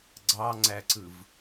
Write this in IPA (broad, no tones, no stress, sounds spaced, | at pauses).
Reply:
ɡ͡ǀ ɑ ŋ͡ǀ æ ǀ ɯ v